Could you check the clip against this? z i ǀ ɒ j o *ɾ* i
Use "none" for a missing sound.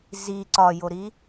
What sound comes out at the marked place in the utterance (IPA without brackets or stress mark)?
ɾ